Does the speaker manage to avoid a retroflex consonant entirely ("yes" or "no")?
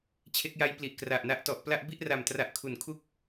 yes